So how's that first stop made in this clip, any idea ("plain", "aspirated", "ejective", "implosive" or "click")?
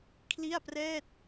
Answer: aspirated